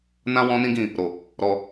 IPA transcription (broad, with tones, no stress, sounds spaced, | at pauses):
n ã˦ w ɔ̃˦ n ĩ˦ ɡ ĩ˦˨ | ɾ o˨ | ɾ ɔ˧